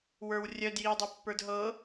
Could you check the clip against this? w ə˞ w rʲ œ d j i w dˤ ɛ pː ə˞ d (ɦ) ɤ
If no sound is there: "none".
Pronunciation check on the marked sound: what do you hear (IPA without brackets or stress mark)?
ɦ